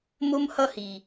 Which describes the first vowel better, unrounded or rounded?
rounded